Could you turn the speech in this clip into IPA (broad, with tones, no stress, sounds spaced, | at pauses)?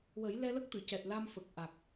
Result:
w ə˨˩˦ j l ɛ˧ l ə˦˥ k̚ t̪ ɨ˨˩˨ c ɛ˨˩ t̚ l a˧ m f ə˨˩ k̚ ʔ a˨˩ k̚